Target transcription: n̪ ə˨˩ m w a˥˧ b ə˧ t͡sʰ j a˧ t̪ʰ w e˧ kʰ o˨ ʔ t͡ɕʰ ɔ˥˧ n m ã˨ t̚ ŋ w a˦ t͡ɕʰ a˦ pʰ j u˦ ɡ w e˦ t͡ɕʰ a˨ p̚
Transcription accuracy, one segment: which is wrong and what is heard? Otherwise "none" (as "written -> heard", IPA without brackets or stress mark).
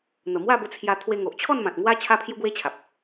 kʰ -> ŋ